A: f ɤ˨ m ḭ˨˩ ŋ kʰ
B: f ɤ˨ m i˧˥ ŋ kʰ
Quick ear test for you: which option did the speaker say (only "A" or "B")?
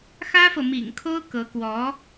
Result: A